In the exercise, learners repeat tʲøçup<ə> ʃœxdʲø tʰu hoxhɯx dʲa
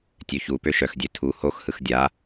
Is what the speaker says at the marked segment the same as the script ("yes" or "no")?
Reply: no